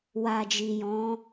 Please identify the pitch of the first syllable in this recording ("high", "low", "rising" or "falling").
low